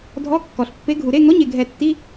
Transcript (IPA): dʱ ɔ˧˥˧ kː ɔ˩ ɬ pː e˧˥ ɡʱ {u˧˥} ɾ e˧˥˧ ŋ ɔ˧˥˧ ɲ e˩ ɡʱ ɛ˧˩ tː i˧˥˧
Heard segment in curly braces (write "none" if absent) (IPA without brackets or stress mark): u˩